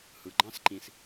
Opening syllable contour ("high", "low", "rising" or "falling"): low